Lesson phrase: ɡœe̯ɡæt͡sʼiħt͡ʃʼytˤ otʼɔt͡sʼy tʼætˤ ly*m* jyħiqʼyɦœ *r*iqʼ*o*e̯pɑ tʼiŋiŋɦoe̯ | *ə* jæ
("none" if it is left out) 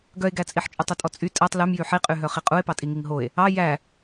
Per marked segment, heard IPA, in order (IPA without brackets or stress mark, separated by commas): m, χ, u, ɑ